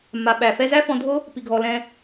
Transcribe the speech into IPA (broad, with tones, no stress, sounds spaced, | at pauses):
m a˨ ɓ æ˨ f ɛ˧ z æ˦ f ɔ̃˧ dʱ o˦ | p i˧ ɡʱ ɔ˧ l ɛ̃˦